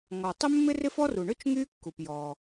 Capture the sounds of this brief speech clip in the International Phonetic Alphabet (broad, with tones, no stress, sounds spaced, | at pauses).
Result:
ŋ ɔ˩ tˤ ɪ˥ mː ɪ˥ r ɪ˥ f ɔ˥ r u˩ ɳ ø˥ t͡ʃ ŋ y˥ kː u˩ p j ɔ˩